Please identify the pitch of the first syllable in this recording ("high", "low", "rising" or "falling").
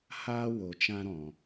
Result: high